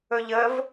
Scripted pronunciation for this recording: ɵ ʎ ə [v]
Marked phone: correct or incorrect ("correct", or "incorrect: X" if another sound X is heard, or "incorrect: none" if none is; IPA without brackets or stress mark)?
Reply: correct